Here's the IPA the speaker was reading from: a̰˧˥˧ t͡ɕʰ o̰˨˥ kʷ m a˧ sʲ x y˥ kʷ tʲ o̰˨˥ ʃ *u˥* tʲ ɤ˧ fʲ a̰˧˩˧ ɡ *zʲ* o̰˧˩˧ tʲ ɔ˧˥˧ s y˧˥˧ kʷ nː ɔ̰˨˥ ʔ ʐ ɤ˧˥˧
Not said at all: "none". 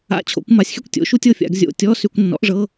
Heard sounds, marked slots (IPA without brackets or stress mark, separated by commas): u˥, zʲ